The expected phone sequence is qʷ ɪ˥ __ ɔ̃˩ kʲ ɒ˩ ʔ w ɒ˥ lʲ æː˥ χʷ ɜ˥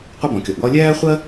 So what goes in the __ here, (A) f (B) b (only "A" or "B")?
B